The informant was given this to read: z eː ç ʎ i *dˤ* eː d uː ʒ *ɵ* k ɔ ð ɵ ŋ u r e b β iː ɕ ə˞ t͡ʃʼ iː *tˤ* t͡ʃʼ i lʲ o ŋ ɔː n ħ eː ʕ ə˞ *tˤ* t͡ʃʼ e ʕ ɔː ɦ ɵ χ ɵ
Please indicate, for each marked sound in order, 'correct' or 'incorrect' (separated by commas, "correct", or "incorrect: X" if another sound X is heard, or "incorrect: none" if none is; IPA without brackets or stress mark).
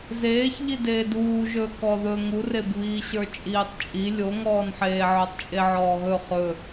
incorrect: d, incorrect: ɵː, correct, correct